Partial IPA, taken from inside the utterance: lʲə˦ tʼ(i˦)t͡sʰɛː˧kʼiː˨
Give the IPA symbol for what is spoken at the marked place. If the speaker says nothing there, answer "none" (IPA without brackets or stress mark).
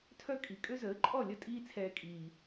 iː˦